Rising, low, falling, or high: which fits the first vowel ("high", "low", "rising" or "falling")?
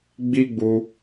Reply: high